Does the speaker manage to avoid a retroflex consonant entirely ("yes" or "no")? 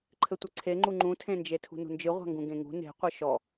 yes